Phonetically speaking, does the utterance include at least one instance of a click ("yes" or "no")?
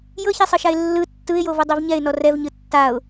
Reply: no